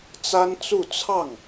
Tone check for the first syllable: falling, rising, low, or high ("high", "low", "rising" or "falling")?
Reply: high